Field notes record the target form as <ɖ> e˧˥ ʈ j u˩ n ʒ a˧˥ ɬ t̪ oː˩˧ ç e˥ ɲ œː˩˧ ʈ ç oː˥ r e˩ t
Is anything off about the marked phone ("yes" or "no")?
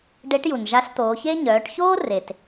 no